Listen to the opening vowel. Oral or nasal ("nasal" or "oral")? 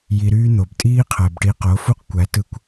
oral